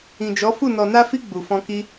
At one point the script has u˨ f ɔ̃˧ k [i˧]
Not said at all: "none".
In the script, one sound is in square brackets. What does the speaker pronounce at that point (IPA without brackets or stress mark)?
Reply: i˧